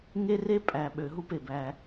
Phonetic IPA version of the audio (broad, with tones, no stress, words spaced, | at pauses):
ŋe˦re˦ pʼæ˨ɓø˨ ɦu˦pe˨bæ˧